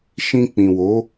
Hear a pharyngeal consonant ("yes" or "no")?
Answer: no